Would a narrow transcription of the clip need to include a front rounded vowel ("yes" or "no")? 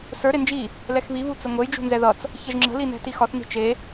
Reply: no